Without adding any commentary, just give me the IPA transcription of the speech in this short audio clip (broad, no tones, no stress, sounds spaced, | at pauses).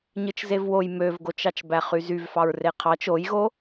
ɲ ɯ t͡ʃ z e v w o j m ø v ɡ o t͡ʃ ɑ t͡ʃ b æ χ y z y v f ɑ ɹ r e qʰ ɑ t͡ʃ o j ɣ o